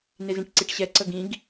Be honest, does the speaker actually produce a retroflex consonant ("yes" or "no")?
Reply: yes